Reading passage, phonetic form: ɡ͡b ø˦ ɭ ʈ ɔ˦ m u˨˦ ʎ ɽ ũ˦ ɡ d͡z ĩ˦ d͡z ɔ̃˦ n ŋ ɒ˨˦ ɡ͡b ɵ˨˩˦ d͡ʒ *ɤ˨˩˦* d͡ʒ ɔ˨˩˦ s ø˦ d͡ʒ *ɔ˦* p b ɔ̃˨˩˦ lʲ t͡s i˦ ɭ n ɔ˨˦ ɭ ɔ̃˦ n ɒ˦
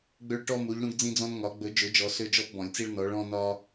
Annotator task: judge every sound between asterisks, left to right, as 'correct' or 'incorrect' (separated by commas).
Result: incorrect, correct